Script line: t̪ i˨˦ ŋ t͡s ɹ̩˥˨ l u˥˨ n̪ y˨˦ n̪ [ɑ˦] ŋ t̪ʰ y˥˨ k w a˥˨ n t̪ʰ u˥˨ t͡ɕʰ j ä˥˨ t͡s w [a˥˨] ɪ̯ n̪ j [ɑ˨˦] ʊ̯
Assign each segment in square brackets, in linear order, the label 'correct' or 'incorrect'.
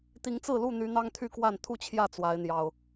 correct, incorrect: a˨˦, incorrect: ɑ˨˩

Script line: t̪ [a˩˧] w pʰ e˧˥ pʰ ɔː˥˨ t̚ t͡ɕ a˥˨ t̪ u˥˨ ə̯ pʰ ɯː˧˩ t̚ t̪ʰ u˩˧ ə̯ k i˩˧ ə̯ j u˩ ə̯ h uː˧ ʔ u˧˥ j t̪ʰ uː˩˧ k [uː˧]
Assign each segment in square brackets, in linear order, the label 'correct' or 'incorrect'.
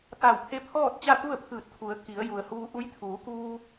incorrect: a˧˩, correct

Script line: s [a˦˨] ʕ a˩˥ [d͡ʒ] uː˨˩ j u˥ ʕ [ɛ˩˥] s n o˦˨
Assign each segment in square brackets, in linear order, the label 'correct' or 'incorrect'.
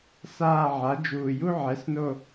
incorrect: aː˦˨, correct, correct

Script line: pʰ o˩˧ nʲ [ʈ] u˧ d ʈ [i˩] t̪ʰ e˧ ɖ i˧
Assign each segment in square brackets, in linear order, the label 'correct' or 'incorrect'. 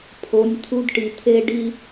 incorrect: t̪ʰ, correct

